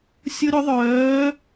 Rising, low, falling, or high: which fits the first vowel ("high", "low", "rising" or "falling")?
high